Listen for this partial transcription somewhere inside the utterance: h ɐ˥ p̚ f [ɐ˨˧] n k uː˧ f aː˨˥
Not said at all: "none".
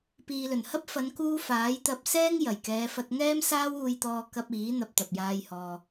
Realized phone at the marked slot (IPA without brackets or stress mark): ɐ˨˧